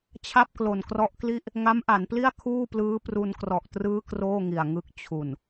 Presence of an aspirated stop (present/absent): present